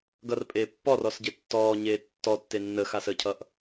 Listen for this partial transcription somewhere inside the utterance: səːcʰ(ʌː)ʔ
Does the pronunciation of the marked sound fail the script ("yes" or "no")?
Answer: no